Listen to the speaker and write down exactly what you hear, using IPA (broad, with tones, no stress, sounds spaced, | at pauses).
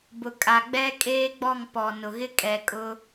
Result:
b ʊ˨ kʼ a˨ ɡ͡b ɛ˦ kʼ eː˦ ɡ͡b ɔ˦˨ ŋ p ɔ˨ n ʊ˨ ɣ ɪ˦ kʼ ɛ˨ kʼ ʊ˦